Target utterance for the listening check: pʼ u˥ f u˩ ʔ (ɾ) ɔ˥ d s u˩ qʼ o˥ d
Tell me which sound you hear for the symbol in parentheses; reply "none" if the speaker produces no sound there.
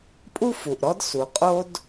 ɾ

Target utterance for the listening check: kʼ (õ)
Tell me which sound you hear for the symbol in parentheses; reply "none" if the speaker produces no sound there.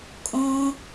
õ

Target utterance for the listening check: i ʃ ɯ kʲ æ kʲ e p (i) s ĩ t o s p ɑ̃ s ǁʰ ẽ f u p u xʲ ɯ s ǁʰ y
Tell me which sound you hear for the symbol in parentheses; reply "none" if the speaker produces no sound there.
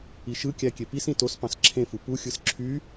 i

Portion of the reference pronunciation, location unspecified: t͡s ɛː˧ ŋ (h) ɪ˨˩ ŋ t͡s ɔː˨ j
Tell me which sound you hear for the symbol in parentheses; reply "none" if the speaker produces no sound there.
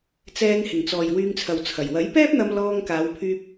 h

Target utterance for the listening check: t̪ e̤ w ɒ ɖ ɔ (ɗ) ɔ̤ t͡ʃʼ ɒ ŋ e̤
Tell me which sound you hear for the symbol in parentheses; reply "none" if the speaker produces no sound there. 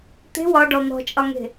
n̪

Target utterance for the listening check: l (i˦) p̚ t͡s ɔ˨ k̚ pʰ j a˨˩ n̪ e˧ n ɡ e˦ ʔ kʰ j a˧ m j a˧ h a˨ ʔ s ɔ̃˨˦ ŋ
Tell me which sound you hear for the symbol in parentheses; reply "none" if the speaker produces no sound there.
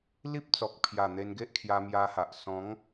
i˦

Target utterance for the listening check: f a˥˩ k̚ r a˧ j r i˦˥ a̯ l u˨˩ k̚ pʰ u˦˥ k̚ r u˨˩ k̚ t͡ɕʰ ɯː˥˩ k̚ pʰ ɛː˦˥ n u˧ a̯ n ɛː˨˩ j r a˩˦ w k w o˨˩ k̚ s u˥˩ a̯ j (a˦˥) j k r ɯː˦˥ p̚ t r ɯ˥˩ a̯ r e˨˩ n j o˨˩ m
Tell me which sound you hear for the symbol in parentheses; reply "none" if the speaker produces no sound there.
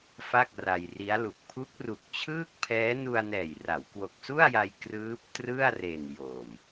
a˧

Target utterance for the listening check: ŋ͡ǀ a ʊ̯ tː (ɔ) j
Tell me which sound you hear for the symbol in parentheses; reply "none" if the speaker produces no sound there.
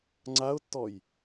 ɔ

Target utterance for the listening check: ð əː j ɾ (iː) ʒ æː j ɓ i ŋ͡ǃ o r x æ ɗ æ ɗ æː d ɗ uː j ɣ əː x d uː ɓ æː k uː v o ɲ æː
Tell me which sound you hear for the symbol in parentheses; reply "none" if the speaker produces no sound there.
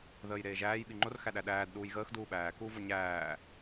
eː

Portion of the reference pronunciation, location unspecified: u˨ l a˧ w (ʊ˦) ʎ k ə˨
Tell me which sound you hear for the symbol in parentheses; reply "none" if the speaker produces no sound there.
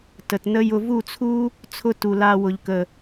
ʊ˨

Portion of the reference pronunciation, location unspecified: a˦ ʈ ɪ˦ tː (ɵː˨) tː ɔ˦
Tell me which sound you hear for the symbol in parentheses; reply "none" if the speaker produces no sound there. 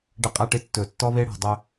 ɵː˨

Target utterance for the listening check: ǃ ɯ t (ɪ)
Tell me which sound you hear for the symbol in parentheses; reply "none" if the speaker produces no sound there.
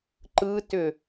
ʏ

